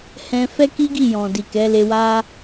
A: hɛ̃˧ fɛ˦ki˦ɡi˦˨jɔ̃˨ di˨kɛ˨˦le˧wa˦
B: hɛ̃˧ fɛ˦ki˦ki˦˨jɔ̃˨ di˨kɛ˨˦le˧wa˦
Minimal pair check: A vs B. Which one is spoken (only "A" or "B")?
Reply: A